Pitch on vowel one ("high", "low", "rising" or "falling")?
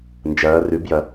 rising